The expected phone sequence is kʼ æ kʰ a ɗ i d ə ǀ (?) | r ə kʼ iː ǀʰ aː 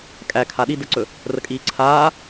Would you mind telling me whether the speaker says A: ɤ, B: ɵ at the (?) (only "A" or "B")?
B